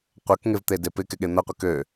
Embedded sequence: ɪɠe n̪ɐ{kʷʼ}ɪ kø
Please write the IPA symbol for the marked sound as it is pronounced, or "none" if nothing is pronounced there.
qʷ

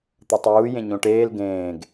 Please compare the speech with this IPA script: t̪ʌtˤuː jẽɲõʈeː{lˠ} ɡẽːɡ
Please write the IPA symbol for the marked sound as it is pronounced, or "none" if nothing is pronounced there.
l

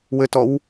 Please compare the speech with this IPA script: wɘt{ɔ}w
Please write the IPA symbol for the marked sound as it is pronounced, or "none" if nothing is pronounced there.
ɔ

